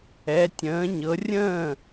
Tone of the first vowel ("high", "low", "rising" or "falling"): rising